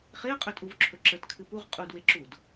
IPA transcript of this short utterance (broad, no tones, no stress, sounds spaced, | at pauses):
χ e ɐ̯ qʼ ɵ tʼ u v ǁʰ ɵ ǁ ə t kʰ ɨ p u ʁ qʼ u d w e ǁ u d